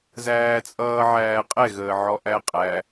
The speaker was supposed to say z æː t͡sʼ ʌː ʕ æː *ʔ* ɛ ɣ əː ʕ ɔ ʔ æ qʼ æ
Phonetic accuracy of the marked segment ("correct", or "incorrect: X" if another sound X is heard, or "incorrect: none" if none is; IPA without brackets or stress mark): incorrect: qʼ